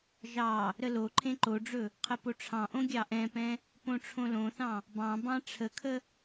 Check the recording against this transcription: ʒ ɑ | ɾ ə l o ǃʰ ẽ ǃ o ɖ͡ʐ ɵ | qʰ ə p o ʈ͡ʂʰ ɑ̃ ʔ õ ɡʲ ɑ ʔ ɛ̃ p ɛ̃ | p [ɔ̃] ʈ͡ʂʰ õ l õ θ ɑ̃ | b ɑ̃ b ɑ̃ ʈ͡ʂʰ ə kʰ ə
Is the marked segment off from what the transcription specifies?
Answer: yes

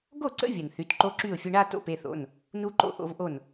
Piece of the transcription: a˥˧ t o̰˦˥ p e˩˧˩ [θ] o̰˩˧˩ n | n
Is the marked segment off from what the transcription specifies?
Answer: no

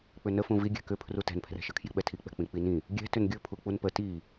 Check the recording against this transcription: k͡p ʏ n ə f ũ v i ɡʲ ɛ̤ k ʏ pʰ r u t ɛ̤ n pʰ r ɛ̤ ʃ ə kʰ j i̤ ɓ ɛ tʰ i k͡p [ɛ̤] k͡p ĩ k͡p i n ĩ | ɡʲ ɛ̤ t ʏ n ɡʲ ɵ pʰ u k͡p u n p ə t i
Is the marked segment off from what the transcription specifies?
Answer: no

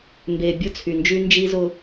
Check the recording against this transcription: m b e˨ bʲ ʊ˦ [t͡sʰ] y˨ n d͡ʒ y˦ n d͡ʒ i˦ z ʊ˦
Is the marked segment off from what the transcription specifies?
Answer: no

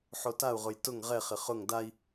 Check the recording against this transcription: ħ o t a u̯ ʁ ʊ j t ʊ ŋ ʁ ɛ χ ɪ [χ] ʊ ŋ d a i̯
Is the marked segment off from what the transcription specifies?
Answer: no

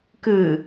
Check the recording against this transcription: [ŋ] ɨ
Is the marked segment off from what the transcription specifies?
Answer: yes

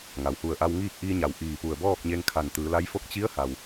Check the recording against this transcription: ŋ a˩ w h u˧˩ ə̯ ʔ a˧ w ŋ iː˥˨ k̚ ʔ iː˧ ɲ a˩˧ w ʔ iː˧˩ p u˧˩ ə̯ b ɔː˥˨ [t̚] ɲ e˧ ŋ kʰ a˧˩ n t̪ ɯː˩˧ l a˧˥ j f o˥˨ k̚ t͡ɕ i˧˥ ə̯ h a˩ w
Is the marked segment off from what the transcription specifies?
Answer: yes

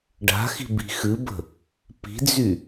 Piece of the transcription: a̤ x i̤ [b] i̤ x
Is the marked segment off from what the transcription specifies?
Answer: no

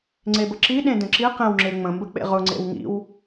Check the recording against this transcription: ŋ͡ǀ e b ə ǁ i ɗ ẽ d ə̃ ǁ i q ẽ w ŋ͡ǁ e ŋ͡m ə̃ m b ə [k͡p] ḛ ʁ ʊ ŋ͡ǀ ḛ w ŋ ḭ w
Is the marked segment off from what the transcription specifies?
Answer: no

